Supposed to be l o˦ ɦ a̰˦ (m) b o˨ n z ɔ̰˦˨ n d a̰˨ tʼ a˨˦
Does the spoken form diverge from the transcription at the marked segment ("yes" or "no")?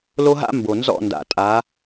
no